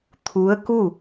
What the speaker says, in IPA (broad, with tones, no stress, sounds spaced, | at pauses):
t̪ʰ u˧˥ ə̯ k u˥˨